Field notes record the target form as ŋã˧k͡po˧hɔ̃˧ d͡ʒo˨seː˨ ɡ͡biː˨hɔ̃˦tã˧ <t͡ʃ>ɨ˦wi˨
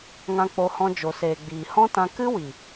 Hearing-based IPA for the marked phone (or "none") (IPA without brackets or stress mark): k